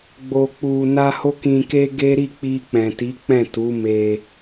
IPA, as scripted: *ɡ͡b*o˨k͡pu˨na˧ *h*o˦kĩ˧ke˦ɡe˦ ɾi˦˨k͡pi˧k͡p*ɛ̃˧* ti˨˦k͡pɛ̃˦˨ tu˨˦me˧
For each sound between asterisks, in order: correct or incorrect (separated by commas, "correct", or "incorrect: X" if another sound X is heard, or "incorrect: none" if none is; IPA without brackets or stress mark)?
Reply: correct, correct, incorrect: ɛ̃˨